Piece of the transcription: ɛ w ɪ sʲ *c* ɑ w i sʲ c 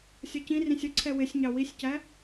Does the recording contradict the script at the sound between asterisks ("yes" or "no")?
yes